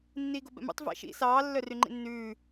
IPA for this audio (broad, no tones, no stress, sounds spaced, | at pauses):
nː iː ɡ o b ɛ̰ m ṵ tˤ v ɛ̰ ʃ ḭ s ɑː lː œ r y ŋ͡ǃ ḭ nː ʉː